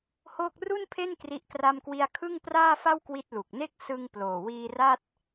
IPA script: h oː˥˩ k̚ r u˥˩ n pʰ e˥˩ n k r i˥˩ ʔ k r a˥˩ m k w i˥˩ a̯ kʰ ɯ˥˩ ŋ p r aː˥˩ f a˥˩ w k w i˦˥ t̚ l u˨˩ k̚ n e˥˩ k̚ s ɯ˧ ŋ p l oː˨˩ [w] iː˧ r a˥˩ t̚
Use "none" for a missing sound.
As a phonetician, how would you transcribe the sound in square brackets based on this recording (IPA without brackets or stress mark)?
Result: w